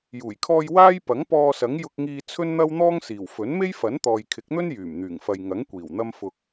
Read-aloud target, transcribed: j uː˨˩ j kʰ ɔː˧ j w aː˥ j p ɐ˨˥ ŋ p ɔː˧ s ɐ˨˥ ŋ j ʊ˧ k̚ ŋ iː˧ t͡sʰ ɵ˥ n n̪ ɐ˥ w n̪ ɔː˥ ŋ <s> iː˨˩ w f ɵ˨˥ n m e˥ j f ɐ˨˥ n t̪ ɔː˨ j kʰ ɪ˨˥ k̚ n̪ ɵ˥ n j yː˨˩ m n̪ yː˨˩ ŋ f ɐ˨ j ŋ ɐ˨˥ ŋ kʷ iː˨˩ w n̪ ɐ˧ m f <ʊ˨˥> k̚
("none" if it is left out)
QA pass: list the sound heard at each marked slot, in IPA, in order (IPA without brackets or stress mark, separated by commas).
s, ʊ˨